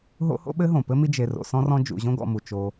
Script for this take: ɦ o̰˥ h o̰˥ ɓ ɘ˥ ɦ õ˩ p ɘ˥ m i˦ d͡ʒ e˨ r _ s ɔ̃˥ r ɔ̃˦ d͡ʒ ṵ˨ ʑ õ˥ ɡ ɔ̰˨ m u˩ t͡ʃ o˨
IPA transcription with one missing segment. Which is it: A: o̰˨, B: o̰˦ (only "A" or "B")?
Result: A